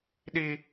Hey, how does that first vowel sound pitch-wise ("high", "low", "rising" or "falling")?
high